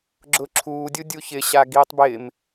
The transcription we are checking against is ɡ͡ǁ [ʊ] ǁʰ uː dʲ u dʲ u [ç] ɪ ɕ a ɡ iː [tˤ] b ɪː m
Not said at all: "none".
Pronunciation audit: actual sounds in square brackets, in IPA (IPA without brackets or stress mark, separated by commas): ʊ, ç, tˤ